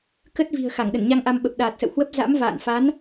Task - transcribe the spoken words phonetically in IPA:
k ə˦˥ t̚ v i̤˨˩ ə̯ x a˧˩ ŋ ɗ ə˧˩ n ɲ a˧ ŋ ʔ a˧ m ɓ ə˨˩ p̚ ɗ aː˨˩ t̚ s ə̰˧˨ w h w ə˦˥ p̚ z a̰˧˥ m v a̰ː˧˨ n f a˨˦ n

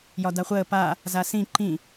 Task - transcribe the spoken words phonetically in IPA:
j ɒ d a χʷ əː p a | z a s ĩ ǃ ĩ

